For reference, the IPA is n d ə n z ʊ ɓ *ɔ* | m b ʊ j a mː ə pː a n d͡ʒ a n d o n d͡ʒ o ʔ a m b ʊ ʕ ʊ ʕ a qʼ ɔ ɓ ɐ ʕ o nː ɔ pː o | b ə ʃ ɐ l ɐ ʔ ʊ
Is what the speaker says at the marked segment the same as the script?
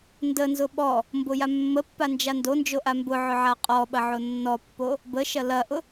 yes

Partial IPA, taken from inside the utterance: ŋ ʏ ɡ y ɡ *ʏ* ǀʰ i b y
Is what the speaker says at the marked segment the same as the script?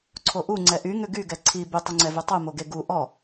no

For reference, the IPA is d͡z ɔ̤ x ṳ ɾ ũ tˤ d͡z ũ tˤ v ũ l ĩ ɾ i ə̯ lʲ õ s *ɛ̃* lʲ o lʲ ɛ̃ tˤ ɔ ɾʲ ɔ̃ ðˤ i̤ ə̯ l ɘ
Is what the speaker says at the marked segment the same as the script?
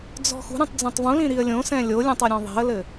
yes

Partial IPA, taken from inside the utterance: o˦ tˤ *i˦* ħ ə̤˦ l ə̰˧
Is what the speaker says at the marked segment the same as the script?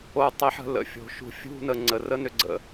yes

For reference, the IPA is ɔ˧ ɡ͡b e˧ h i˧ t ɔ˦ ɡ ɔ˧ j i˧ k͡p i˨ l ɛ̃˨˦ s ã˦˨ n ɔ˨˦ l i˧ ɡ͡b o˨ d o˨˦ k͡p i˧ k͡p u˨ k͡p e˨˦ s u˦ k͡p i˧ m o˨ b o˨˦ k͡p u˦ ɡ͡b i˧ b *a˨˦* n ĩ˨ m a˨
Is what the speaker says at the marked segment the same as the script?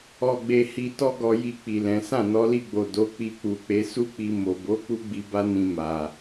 no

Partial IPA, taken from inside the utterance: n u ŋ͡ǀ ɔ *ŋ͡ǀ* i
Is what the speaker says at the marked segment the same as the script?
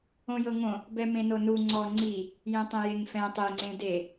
yes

